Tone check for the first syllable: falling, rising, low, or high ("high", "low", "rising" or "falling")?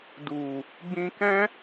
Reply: low